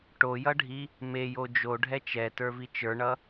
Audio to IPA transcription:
ʈ o j ʌ ɖʱ i | m e j o d͡ʒ o ɖʱ ɛ t͡ʃ ɛ t ə˞ v i t͡ʃ ə˞ ɳ ʌ

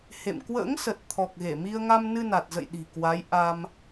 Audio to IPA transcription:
h ḛ˧˨ m k w ə̰ː˧˥ ŋ s ə˨˩ t̚ t̪ʰ ɔ˨˩ k̚ ɣ e˧˩ m i˧ ə̯ ŋ a˧ m n ɨ˧ n a˨˩ t̚ z ə̰˧˨ j ɗ i̤˨˩ k w a˨˦ j ʔ a˧ m

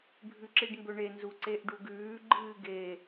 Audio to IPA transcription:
bʱ ʉ ǁ i ɖ m b ɵ ɳ e n z u ǀ e ʔ ɖ u ɡ ʉː ɡ͡ǃ ɨː ɡ e

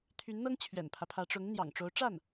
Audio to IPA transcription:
t̪ʰ y˧˥ n n̪ ɤ˥ ŋ t͡ɕʰ ɥ ɛ̰˨˩ n pʰ ä˦ pʰ ä˧˥ ʈ͡ʂ ʊ˧˥ ŋ n̪ j ɑ̰˨˩ ŋ ʈ͡ʂ o˧˥ ʊ̯ ʈ͡ʂ a˥˩ n

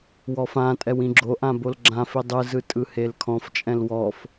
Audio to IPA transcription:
w ɔ f ã tʼ ɛ w ĩ ɡ͡ǁ o ʔ ã b o l ɡ͡ǁ ã f i dˤ ɯ z ɯ tʼ ɯ h e l kʰ ɔ̃ f t͡ʃʼ ɛ̃ l w ɔ f

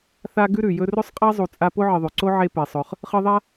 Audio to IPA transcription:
θ a˦ ɡ ʉ˥ ɾ ʉ˩ j ɵ˦ r ɵ˥ sˤ qʼ a˥ zˤ u˨ t͡sʼ a˦ p o˥ ʕ ɨ˨ ðˤ ʉ˩ ǀ o˥ ʕ e˦ p e˩ sˤ ɵ˩ χ | χ ɨ˦ ðˤ a˥

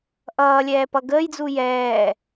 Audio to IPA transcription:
ʔ ʌː lʲ ɛː p ʌ ɡ əː j d͡z u j ɛː

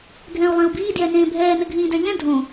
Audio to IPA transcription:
ɡʱ ɛ̃ u̯ lˠ ẽ u̯ b iː d j ɛ n ẽː bʱ ɛː n ɘ ɡʱ ĩː d ɛ̃ ʎ ɛ̃ dʱ õ

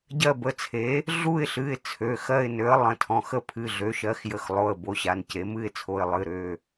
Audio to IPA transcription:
ɟ ɜ˦˨ b ə˩˧˩ t͡sʰ e˩˥ | ɮ u˦˨ ɪ̯ ɬ ɨ˩˧˩ ɪ̯ t͡sʰ ø˩˧˩ x ɜ˦˨ ɪ̯ n ø˩˥ ə̯ lˠ ə̃˩˧˩ tʰ ɔ̃˩˧˩ x ə˦˨ pʰ ɨ˩˧˩ ɮ ø˩˥ ʃ ɜ˩˥ x j ə˩˥ x lˠ o˩˧˩ ə̯ b o˩˥ ɕ a˩˧˩ n c e˩˥ m ɨ˦˨ ɪ̯ t͡sʰ o˩˧˩ ɪ̯ lˠ ɨ˩˧˩ ɾ ø˩˧˩

